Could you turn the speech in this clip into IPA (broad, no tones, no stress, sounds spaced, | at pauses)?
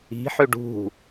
i̤ ħ ø ɖ ṳ